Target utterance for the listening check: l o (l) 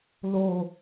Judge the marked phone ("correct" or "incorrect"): incorrect